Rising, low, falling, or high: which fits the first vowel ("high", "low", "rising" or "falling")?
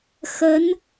rising